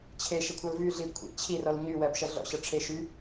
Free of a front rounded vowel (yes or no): no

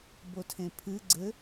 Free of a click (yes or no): no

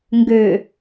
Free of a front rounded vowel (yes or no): no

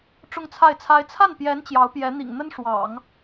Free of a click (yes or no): yes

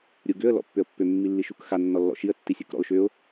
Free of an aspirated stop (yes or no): yes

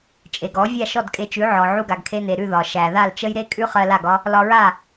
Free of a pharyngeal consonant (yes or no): no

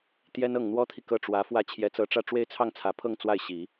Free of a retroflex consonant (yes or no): no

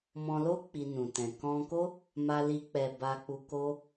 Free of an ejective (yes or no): yes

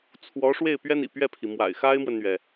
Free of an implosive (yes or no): yes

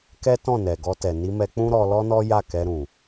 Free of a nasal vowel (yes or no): no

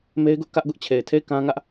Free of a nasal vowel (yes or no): no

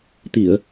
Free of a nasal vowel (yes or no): yes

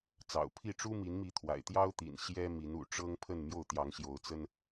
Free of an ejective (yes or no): yes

